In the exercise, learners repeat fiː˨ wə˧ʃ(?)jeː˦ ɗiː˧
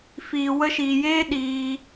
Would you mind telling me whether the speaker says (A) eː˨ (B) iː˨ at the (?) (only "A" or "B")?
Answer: B